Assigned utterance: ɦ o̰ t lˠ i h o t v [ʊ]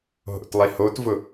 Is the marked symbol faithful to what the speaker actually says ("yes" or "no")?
yes